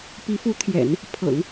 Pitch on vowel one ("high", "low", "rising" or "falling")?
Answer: rising